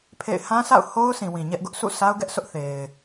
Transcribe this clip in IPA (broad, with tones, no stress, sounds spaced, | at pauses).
pʰ ḛ˦˨ ɪ̯ h ã˦ s a̰˦˨ ʊ̯ h o˦ ʊ̯ s ĩ˨ w ĩ˨ ɲ ɛ˦ ʔ ɡ ʊ˦ ʔ s ṵ˦˨ s a˦ ʊ̯ ɡ ɛ˦ ʔ sʰ ʊ˦ ʔ θ e˨ ɪ̯